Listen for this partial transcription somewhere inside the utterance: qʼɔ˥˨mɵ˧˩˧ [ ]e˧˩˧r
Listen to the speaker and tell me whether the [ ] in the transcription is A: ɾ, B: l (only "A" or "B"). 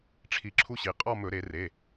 A